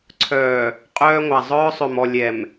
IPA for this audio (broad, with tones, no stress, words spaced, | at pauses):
ǀʰœː˨ | qʼœː˦ŋʷa˨ zˤœː˦sˤø˨m ɔ˨ lʲɛ˨m